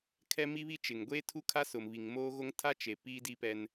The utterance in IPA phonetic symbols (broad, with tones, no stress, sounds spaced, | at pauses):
kʰ ɛ˦ m i˦ β i˦ t͡ʃ ɪ˨ ŋ ɡʷ eː˦ tʰ u˦ kʰ a˦ s ʊ˨ m β i˨ ŋ m oː˦ ɣ o˦ ŋ tʰ a˦ t͡ʃ e˨ p iː˦ d i˦ p ɛ˦ n